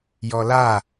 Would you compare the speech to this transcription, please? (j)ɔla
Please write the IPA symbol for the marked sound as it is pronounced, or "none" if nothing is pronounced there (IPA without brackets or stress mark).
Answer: j